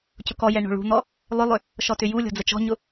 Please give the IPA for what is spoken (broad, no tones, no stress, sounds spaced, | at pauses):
c ʊ k ɔ j ɛ ɳ o̤ ɭ ṳ n̪ ɔ | lˠ ʏ lˠ ʏ | ʃ ɔ t ʏ j u lʲ ɔ̤ d͡z ə t͡ʃ ɔ̤ ɲ ʊ